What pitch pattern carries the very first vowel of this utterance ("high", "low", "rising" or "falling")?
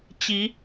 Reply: rising